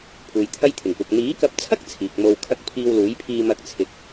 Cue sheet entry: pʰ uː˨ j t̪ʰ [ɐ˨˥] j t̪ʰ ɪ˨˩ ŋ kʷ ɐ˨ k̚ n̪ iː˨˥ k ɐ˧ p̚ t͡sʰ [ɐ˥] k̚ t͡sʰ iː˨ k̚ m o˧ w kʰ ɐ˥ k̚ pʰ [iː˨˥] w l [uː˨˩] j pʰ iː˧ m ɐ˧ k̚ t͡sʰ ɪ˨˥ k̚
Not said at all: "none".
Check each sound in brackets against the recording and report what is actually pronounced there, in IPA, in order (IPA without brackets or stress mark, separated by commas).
ɐ˥, ɐ˥, iː˧, uː˨˥